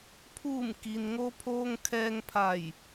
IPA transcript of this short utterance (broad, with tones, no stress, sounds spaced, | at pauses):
pʰ uː˧˩ m k i˩ n ŋ o˧ pʰ oː˧ ŋ kʰ ɛː˧ ŋ pʰ a˧˩ j